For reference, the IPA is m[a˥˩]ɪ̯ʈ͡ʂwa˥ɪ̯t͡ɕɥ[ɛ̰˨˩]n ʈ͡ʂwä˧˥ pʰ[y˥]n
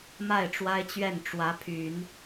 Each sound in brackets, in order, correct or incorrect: correct, incorrect: ɛ˥˩, incorrect: y˨˩˦

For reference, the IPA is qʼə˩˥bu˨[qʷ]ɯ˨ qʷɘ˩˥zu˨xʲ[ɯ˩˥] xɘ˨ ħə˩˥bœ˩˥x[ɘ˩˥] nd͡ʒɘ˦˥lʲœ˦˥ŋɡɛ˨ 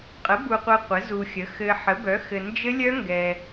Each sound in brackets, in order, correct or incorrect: correct, incorrect: ə˩˥, incorrect: ɘ˨

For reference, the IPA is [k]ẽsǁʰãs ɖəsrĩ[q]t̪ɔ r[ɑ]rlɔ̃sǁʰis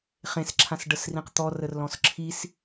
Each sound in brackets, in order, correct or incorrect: incorrect: χ, correct, incorrect: ə

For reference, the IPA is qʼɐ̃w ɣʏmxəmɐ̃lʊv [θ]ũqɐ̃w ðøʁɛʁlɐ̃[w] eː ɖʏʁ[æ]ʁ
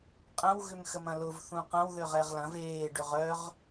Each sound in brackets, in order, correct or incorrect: correct, incorrect: v, incorrect: œ

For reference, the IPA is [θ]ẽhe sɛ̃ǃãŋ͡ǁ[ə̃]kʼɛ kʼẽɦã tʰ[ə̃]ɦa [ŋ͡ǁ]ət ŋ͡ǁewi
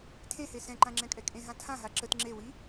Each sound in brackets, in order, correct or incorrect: incorrect: tʰ, incorrect: ɛ̃, incorrect: ã, incorrect: ǁ

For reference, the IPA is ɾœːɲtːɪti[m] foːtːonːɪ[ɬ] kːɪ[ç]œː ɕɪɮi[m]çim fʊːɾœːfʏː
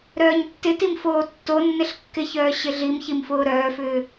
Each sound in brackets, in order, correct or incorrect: correct, correct, correct, correct

